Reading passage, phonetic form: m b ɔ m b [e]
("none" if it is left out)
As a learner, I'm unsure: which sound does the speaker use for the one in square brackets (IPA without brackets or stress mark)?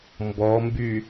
y